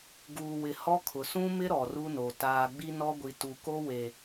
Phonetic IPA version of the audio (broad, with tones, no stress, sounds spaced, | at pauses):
ɡ uː˨ w ɪ˨ h ɔ˦ kʰ ʊ˨ s ũ˦ m ɪ˦ ɾ ɔ˨ r u˦ n o˨ t aː˨ ɡ͡b i˦ n ɔ˦ ɡʷ i˨ t u˨ k o˦ w e˨